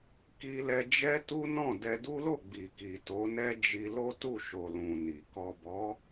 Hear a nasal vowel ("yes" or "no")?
yes